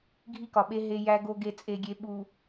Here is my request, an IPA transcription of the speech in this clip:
ɡʱ i˦ k ɒ˨ ɓ e˦ ɦ e˦ j æ˦ ɡ o˦ ɡ e˦˨ t͡sʼ e˦ ɡʲ e˦ ɓ u˨

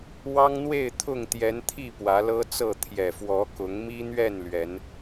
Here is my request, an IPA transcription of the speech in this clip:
w ɑ˦ ŋ n̪ w e˥˨ ɪ̯ t̪ʰ ʊ˥˨ ŋ t̪ j ɛ˨˦ n t̪ʰ i˥˨ p w ä˨˦ l ɤ˦ t͡s ɤ˥˨ t̪ʰ j ɛ˨˩ f w ɔ˨˦ k ʊ˨˦ ŋ m i˦ n̪ ɥ ɛ˥˨ n l ɥ ɛ˨˦ n

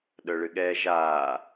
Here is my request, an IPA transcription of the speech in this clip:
ɗ œ ɭ ɨ ɠ ɛː ʒ aː

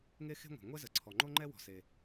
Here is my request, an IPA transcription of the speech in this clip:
ŋ e˥ x e̤˥ ŋʷ ɛ̤˩ ŋʷ ɛ˥ z ə˩ ǀʰ ɔ˩ ŋ͡ǃ o˥ ŋ͡ǃ ɛ˥ w ɔ̤˩ s e˩

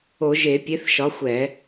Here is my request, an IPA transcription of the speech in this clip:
o˧˩˧ ʒ e˧˩˧ pʲ e˨˥ θ ʃ ɒ˨˥ xʷ ɛ˧˩˧

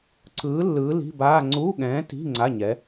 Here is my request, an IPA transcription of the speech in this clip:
ǀ ɯː˨˥ lː ɯː˨˥ l i̤˧˥˧ b aː˧˥˧ ŋ͡ǀ u˧˥˧ ɠ ɛ̃ː˨˥ t i̤˧˥˧ ŋ͡ǀ a˧˥˧ ɲ ɛ˨˥

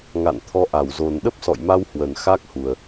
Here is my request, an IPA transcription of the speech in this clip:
ŋ a̰˧˨ n t̪ʰ ɔ˧ ʔ a˧˩ w z o˨˩ n ɗ ə˦˥ p̚ s ɔ̰˧˨ j m a˧ w h w ə˨˩ n x a˦˥ k̚ h u˨˩ ə̯

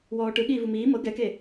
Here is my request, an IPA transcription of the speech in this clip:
w ɔː ʈ ɯ ɠ iː v u m iː m ɤ ɡ ɛ k e

